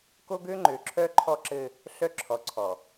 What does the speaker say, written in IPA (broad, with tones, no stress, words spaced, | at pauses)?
ko˦ɡø˦ ŋ͡ǃø˨ ǁʰœ˦ǃʰɔ˦ǁɘ˦ | ɬœ˦ ǁʰɔ˨ǀʰɔ˨